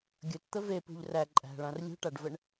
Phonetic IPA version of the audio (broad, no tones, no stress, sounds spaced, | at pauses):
ɡʲ ɵ t t̪ ə v e p ṳ ʎ r æ ǃʼ æ̤ ɭ ã r lʲ ṳ ʈ a ɖ v ə ɳ